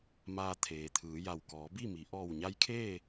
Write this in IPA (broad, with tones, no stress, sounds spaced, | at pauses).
m aː˧ t̪ʰ eː˩ t̪ʰ ɯː˩˧ j a˧˩ w k ɔː˩˧ b i˥˨ m i˩˧ ʔ ɔː˧˩ w ɲ a˧ j kʰ eː˥˨